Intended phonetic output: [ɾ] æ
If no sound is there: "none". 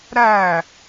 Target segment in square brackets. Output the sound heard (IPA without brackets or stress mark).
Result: ɾ